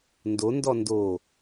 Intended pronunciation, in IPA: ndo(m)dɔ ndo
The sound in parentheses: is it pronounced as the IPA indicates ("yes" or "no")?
no